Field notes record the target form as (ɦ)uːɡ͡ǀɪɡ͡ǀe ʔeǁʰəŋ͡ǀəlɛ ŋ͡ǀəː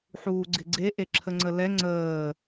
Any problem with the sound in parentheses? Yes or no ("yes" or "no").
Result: yes